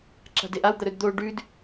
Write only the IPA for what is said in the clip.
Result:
ǁ a̤ d e ʔ a w d̪ ɐ ɾ ɵ d d̪ o ɖ ʉ d

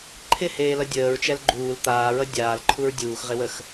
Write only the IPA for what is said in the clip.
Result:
ǃʰ ɪ h eː l ʌ dʲ əː ɹ t͡ʃ ɛ l ɡ͡ǃ uː l t̪ aː ɹ ʌ dʲ aː l ǃʰ u ɹ dʲ uː x ʁ ɪ w ə x

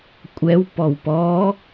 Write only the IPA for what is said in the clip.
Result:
kʷʼ ɛ w p ɔ w p ɔ

